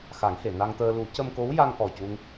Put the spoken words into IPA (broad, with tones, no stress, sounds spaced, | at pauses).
x a˨˩˦ ŋ h e˨˩˨ n a˧ ŋ t̪ əː˧ l u˨˩˦ c ə˧ m k o˧˥ w j a˧ ŋ ʔ ɔ˨˩ c u˧ ŋ